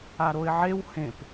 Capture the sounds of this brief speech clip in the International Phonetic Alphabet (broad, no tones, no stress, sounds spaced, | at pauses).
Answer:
a ɾ o ɪ̯ ʕ e w h ẽ p